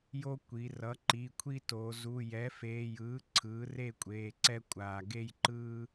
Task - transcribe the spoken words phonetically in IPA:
j o˦ kʷ i˩˧ r ʌ˩˥ ǃ i˩˧˩ kʷʰ i˦ t o˩˧ z u˩˧˩ j ɛ˩˥ f eː˩˧˩ j ɯː˩˥ ǀʰ ɯː˩˥ r e˥˨ kʷʼ eː˩˧˩ ǀ ɛ˦ kʷʼ aː˩ ɡ e˥˨ j ǃ ɯː˦

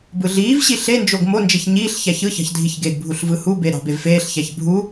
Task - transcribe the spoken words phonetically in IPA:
b ɯ ɮ iː v ɕ i ɬ e n d͡ʒ o ɡ m o n d͡ʒ e ç ɲ iː ɬ ç æ ç ɯ ç ɑ̤ ç dʱ i ç ɡ e ɡ bʱ u ɬ v ɯ h u b e ɾ ɑ̤ b e v f eː ɬ ç æ ç bʱ u

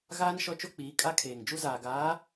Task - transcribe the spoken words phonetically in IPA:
ɣ aː˦ n ʃ ɔ˦ t͡ʃ o˦ k͡p iː˨˦ kʼ a˦ kʰ eː˨ ŋ d͡ʒ u˦ z aː˨ ɡ aː˨˦

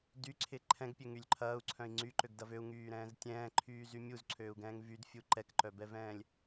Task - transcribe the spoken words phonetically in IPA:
d y ǀʰ ɪ ǃʰ ɛ̃ ɡ pʲ ø ŋ y lʲ ǃʰ ɐː u̯ ǀʰ œ̃ i̯ ŋ͡ǀ y ǃ ø ɡ d ɐ v ø u̯ ŋ yː ɾ ɛ̃ː z tʲ ɛ̃ː ǃʰ yː z y mʲ u z ǀʰ øː u̯ ɡ ɛ̃ː ŋ v y d fʲ u ǃ ɛ k ǃ œ b ɛ v ɛ̃ː lʲ

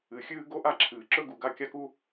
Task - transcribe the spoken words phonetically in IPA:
ɨ˩ xʲ ɨː˥ ɡ o˥ ʔ a˥ ǁʰ ɨː˩ ǁ ɵ˥ ɡ u˩ ɡ a˥ kʲ a˥ k u˥

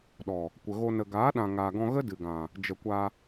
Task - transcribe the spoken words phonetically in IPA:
ɗ ɔ˨ | kʷ ə˨ ɣ o˧ n ə˨ ɡ aː˨˦ ɗ ã˨ ŋ aː˨ ɡ ɔ̃˧ ɣ ə˦ d ɨ˨ ɡ ã˨ | d͡ʒ ə˨ kʷ a˧

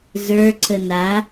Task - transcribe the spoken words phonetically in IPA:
z ə˞ ǀ ə n a

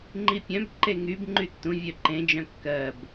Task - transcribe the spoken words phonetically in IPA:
ŋ͡ǃ i pʲ œ̃ b ǃ e ŋ y b ŋ͡ǃ y tː ũ vʲ œ ǃ ẽ d͡ʒ œ̃ kː ɜ b

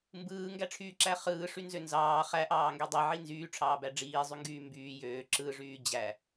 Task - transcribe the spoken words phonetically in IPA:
m b ɯː ŋ ɡ æ ʈ͡ʂʰ yː ǁ æ χ ɯː ʂ y n z ø n z ɑː χ æ ʔ ɑː ŋ ɡ ø dˤ i ʕ i n z yː ʈ͡ʂʰ ɑː b æ ɖ͡ʐ iː zˤ y ŋ ɡ yː m b yː j øː ǁ ɯ ʐ yː d͡ʑ æ

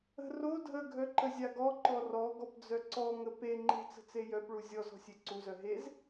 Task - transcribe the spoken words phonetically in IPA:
ə̤ r o dʱ ə ɡʱ œ ǃ ə zʲ a ɡ ɔ ǃ ɔ r ɔ ɡ ɔ p d͡z œ ǀ ɔ ŋ ə p e ŋ͡ǃ e̤ t͡s ə̤ t͡s e j œ p ɭ u zʲ ɔ z ɔ̤ sʲ e ǀ u z œ ɦ e z

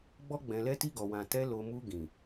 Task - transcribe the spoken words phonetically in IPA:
ɡ͡b ɔ˧ ɡ͡b ɛ̃˨ l ɛ˧ t i˧ ɡ ɔ˨ w ã˨ t ɛ˧ l o˨ m u˧ ɡ ĩ˨

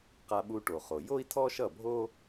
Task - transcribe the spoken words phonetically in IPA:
q a˧ ɓ u˧ ʈ o˩ χ o˩ j o˥ i̯ tʰ ɔ˥ ʃ ʌ˥˩ bʱ o˥

